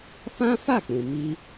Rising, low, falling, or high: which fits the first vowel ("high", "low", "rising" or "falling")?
high